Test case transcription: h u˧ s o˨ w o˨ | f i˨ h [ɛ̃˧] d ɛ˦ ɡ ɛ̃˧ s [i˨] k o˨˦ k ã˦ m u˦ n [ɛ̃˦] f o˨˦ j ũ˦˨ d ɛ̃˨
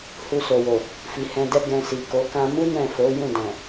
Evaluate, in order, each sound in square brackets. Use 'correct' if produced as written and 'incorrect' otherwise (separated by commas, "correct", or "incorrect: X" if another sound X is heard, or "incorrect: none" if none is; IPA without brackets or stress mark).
correct, correct, incorrect: ɛ̃˦˨